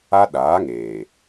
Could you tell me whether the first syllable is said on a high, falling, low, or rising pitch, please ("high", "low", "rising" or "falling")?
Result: high